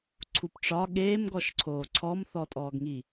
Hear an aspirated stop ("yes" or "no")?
yes